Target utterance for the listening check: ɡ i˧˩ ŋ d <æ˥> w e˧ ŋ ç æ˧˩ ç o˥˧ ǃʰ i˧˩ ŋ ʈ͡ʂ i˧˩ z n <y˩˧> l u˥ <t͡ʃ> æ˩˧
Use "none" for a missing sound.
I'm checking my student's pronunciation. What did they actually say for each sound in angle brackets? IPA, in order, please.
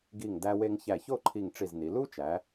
æ˧, i˩˧, t͡ʃ

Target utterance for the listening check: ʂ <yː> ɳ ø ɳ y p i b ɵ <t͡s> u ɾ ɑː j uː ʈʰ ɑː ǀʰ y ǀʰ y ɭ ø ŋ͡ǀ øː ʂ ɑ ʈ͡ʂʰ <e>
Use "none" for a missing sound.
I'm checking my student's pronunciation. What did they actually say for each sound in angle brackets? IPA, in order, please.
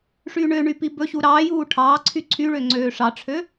yː, ɕ, ø

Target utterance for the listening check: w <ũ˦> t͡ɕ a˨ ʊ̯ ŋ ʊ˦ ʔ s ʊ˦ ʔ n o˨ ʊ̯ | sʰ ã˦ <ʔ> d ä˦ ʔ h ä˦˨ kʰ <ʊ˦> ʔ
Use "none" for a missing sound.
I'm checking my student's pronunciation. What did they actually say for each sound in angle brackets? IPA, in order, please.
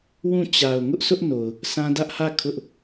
ũ˦˨, none, ʊ˦

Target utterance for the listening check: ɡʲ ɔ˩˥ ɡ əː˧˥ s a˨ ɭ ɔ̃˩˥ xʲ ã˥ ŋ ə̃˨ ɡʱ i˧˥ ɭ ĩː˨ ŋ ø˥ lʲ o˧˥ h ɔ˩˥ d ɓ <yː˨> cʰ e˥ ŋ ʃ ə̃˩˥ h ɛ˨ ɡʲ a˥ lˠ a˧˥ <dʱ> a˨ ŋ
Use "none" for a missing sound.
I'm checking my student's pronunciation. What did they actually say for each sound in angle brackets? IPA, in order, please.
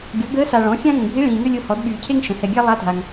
yː˨, dʱ

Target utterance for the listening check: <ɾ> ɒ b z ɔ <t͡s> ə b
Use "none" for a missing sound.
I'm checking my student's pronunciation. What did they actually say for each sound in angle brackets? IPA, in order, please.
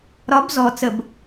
ɾ, t͡s

